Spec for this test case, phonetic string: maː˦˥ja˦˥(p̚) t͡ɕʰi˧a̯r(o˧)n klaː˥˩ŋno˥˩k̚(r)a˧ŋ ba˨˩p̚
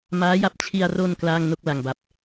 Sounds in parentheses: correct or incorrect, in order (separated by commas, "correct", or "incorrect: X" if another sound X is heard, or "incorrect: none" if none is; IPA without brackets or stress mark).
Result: correct, correct, incorrect: l